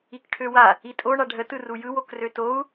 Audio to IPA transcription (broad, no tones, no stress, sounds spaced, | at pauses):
i k ʈʰ ø w a | i tʼ o ɳ a ɖʱ ə t ɯ r u j ɯ w o k r ø t o u̯